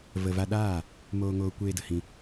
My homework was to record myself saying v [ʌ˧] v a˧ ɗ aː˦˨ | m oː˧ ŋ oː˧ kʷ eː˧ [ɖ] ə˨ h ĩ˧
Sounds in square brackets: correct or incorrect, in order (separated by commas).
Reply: incorrect, incorrect